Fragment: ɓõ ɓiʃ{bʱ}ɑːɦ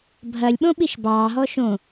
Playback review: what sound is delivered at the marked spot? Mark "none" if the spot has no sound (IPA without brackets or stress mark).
b